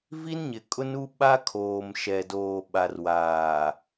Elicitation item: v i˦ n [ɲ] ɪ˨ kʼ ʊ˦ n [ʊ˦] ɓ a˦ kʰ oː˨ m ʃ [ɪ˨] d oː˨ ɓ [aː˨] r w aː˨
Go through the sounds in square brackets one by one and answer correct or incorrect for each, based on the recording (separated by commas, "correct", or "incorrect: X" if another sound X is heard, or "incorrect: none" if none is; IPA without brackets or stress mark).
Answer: correct, incorrect: u˦, incorrect: ɛ˨, incorrect: a˨